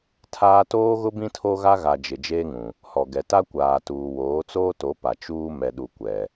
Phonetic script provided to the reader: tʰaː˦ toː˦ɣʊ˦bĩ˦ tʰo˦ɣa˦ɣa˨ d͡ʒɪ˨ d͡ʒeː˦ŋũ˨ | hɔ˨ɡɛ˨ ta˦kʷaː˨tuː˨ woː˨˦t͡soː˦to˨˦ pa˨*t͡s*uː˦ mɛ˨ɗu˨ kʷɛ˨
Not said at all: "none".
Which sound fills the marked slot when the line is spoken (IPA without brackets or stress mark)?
t͡ʃ